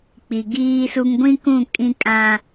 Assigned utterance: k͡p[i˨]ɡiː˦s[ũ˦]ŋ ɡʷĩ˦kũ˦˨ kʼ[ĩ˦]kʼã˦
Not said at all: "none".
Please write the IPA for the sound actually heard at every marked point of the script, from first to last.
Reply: i˨, u˦, ĩ˦

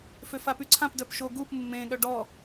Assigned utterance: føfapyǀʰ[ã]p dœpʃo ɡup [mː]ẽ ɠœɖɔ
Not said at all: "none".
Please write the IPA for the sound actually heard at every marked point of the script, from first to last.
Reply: ã, mː

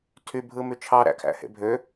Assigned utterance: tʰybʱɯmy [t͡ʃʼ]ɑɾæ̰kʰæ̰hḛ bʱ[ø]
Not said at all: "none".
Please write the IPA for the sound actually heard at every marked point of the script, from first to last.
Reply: t͡ʃʰ, ø

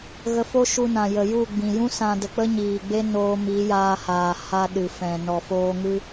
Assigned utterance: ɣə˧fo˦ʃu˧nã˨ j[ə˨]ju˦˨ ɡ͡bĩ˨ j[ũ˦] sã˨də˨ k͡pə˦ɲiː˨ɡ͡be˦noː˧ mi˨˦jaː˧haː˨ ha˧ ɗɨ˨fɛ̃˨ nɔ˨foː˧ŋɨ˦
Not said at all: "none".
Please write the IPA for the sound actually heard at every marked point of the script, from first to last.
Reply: ə˨, ũ˦

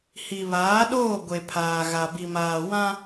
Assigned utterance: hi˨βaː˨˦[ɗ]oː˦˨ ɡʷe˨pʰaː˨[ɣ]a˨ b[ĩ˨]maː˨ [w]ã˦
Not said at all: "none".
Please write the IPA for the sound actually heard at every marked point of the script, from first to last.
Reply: ɗ, ɣ, i˨, w

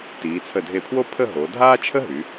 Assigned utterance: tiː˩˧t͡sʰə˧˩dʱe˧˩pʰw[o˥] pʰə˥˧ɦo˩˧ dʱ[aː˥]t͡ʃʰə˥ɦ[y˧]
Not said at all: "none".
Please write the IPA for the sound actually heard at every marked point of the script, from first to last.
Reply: o˥, aː˥, y˩˧

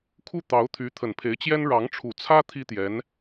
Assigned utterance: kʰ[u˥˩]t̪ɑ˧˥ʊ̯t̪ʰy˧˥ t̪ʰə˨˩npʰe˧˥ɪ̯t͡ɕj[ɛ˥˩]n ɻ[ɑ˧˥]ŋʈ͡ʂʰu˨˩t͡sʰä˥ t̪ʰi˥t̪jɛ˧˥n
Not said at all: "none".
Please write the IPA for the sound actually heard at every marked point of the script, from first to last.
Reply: u˥˩, ɛ˥, ɑ˧˥

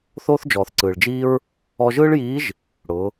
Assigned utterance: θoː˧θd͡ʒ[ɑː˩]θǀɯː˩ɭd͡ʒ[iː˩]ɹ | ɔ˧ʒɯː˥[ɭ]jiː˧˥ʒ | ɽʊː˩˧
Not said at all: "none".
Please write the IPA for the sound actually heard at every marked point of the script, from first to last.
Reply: ɔː˩, iː˧, ɭ

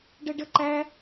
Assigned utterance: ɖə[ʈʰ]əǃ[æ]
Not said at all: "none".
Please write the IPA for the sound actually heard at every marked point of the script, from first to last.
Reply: ɖ, æ

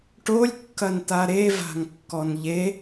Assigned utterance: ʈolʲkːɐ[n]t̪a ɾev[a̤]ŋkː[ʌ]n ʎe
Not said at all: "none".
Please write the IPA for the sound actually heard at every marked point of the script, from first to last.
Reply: n, a̤, ɔ

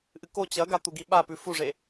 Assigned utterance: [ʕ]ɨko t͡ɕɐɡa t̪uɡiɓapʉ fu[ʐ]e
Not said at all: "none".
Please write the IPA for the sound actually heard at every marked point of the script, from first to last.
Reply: ʔ, ʐ

